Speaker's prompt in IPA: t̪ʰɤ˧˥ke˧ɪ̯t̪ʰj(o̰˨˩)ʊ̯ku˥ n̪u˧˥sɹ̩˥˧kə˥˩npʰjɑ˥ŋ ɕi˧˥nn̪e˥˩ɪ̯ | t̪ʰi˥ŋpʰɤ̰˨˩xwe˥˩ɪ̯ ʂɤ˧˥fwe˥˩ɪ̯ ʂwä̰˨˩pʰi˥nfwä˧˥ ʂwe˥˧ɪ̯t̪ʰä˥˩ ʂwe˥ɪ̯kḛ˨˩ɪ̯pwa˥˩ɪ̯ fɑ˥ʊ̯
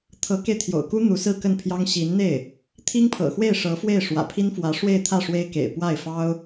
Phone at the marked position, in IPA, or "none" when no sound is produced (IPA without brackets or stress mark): o̰˨˩